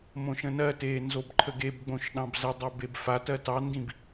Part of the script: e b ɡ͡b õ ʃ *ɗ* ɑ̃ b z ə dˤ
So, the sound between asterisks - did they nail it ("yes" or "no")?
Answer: yes